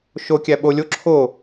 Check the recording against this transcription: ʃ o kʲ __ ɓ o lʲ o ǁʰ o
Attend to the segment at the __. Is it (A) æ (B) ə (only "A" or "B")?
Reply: A